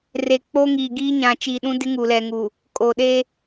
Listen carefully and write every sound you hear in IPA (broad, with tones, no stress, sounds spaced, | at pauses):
r eː˨ k͡p oː˦ ŋ iː˨ ɡ iː˦ ɲ ã˨ t͡ʃ i˨ ɗ ũ˦ d ɪ˦ ŋ u˨ l ɛ˨ ŋ uː˨ | kʼ oː˨ ɗ eː˦